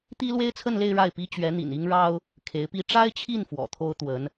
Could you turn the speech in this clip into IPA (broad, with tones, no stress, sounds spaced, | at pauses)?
t̪ i˥ l w e˥ ɪ̯ t͡sʰ ə˥˧ n l e˥˧ ɪ̯ ɻ a˥˩ ɪ̯ p i˥ t͡ɕ ɥ ɛ˧˥ n̪ ḭ˨˩ n i˥ ŋ ɻ ɑ˥ ʊ̯ | kʰ e˧˥ ɪ̯ p i˥ ʈ͡ʂ a˥ ɪ̯ t͡ɕʰ i˥˩ n f w ɔ̰˨˩ t̪ʰ o˥ ʊ̯ t̪ w ə˧˥ n